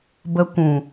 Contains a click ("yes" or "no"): no